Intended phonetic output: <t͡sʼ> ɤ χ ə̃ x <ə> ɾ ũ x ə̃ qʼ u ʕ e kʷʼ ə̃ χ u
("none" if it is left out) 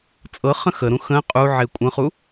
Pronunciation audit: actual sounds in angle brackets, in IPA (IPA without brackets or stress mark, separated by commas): t͡sʼ, ə